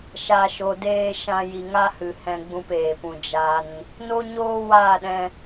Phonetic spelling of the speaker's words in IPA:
ʃ a˨ ʃ o˨ d eː˧ ʃ ã˧ j i˨ ŋ a˦ h ɨ˨ h ɛ̃˧ ɡ͡b ũ˧ p eː˨ p ũ˨ d͡ʒ a˧ n | n o˦ ɲ oː˦ w aː˦˨ ɗ ɛ̃˧

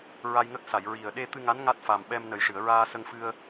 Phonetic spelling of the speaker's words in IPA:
ɹ a˧ j ŋ ə˦˥ k̚ s a˨˩˨ j ɹ i˨˩ ə̯ ɗ e˧ t̪ ɨ˧ ŋ a˧˥ n ŋ a˦˥ t̚ f a˨˩ m ɓ ɛ˧ m n ə˨˩ j ʂ ɨ˨˩˨ ə̯ ɹ aː˧ s ə˧ ŋ f ɨ˧ ə̯

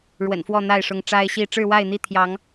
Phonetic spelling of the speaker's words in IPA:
ɻ w ə̰˨˩ n f w ɔ˥˨ n̪ a˥˨ ɪ̯ ʂ ʊ˨˦ ŋ ʈ͡ʂ a˦ ɪ̯ ɕ i˥˨ ʈ͡ʂ ɻ̩˥˨ w a˥˨ ɪ̯ n̪ i˥˨ t̪ʰ j ɑ˨˦ ŋ

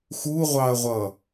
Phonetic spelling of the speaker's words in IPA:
x u ʁʷ ɑ ɐ̯ ʁʷ ʌ

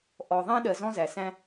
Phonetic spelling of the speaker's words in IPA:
ʔ ɔ˩ ðˤ ɛ̃˧ ɗ ɜ˩ z ɔ̃˧ z æ˩ s æ̃˧

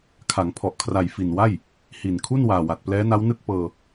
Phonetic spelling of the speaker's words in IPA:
kʰ a˩˦ ŋ pʰ ɔ˨˩ ʔ kʰ r a˨˩ j f i˨˩ n w a˥˩ j | h i˨˩ n kʰ u˥˩ n w aː˨˩ w a˨˩ t̚ p l ɛː˦˥ n a˦˥ w n ɯ˥˩ k̚ p ɤː˧

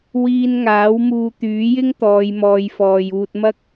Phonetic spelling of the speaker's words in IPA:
w iː˧ n ŋ aː˨˥ w m uː˧ t̪ yː˨˥ j ɪ˥ ŋ t̪ ɔː˨˧ j m ɔː˧ j f ɔː˧ j uː˧ t̚ m ɐ˥ k̚

